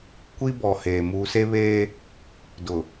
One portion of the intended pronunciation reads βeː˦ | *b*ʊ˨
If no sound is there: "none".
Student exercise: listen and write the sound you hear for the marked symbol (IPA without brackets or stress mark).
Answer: d